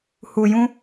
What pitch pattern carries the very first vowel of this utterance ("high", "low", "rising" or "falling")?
low